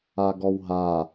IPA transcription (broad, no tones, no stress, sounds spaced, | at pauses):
a ɡ ɔ w ɦ a